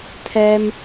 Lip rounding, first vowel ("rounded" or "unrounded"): unrounded